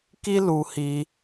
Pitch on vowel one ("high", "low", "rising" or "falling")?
high